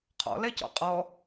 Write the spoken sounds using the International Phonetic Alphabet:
qʰɔ̰lɛcɔ̰ qʼɔ

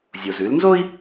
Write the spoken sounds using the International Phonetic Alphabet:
zʲo˩zʉ˩˧lnzo˥i̯

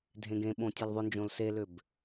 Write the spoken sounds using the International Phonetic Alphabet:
dʱẽɡẽɓõ tʲelðˤʏnd͡ʒõl selʏb

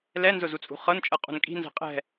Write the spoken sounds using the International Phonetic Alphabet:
lɛnzʊzut͡sʼṳ χɤnt͡ʃʼɤqʼṳn kʼi̤nzɛ̤ qʼɛ̤

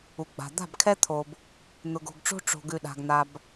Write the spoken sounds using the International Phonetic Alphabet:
u˨ɡ͡ba̤˨ d̪a̤˦˨bkʰɛ˦t̪ʰo˨b | n̪ʊ˨ɡo̤˨ɡʈ͡ʂo̤˦ ʈ͡ʂo̤˨ɡʉ˨ɗa̤˨ɡ n̪a˨b

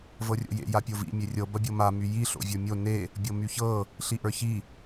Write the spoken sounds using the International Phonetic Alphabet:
vɤrʲo̰jḛ japʲovḭ mʲerʲɤ bɐbʲɤma myji ɬo̰vʲə˞mʲo ne | bʲɤmyçɤ | ɬiʔə˞çi

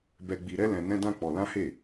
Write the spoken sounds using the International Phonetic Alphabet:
bɛ˧ɡ͡bi˧ɾɛ˦ lɛ̃˧ nɛ̃˦dã˦k͡pɔ˧ lã˦he˦˨

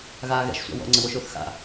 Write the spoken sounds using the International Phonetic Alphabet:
ɣaːɣɛ̰ʃ sʷa̰wɔ̰ ŋ͡ǀəwoʃʊːθxa̰

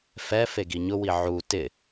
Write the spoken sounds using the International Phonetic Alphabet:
fɛ feɡiɲʊwi ʕu tɪ

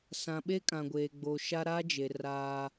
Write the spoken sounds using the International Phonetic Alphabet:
sã˨ɓe˦ kʼã˨ɡʷeː˨ɡ͡bo˨ʃa˦ ɾa˦d͡ʒe˨ raː˦

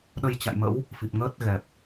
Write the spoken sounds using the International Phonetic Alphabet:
ɗə˧jt͡ɕa̰˧˨jmə̰˧˥w | fi˨˩p̚ŋəː˦˥t̚ɣɛ˨˩p̚

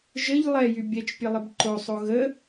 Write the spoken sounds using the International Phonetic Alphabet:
ʒəʎ lˠɛjy bʲɛt͡ʃpʲəlˠɪb ǃosˤo ɣə

